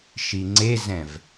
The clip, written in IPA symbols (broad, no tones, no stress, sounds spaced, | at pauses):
ʃ i ŋ͡ǀ e z ɛ̃ v